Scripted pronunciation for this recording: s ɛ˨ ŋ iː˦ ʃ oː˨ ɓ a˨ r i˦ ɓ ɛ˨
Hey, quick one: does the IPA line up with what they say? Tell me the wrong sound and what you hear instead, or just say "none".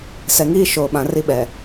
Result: a˨ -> ã˨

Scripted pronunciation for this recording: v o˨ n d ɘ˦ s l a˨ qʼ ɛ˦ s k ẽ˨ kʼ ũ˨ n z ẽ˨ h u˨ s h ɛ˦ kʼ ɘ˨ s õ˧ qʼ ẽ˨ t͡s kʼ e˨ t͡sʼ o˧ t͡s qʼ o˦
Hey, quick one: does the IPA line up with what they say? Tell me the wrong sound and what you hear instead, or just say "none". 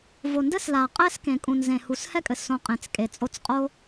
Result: none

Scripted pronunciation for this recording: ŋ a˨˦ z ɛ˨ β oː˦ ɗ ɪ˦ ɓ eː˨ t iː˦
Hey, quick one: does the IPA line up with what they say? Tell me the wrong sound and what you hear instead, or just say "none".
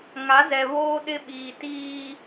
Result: eː˨ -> iː˨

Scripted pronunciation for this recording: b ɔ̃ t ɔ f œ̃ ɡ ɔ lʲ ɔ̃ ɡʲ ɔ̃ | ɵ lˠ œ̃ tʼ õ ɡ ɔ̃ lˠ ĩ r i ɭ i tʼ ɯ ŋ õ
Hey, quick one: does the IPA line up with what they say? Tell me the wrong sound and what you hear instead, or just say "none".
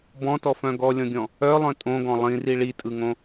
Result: ɵ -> œ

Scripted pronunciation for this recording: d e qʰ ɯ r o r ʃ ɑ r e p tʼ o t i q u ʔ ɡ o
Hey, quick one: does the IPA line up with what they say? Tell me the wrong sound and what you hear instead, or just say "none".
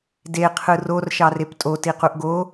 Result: none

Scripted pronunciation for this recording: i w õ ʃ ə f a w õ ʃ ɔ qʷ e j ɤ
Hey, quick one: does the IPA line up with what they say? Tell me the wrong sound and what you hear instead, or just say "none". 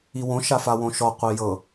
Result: ə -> a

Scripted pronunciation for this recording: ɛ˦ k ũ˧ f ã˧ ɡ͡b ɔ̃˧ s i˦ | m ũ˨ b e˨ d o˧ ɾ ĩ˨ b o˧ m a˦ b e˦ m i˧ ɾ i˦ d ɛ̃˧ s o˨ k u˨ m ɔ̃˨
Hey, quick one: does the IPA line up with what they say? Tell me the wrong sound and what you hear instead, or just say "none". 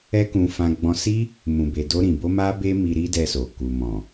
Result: ɛ̃˧ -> ɛ˧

